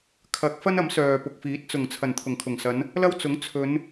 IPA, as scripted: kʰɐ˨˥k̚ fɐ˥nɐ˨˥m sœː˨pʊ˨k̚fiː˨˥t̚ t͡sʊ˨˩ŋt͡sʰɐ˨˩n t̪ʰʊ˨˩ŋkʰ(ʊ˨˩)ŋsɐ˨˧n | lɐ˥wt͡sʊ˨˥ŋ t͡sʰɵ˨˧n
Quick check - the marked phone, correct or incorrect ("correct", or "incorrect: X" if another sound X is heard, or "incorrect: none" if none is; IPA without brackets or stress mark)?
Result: correct